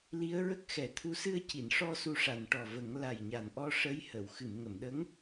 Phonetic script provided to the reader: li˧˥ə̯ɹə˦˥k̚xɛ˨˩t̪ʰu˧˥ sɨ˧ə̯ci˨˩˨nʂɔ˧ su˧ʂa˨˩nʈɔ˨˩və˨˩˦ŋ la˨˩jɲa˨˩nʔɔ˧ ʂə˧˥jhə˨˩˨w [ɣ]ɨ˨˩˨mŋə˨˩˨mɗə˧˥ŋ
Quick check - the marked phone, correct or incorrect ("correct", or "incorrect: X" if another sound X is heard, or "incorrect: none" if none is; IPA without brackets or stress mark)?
incorrect: x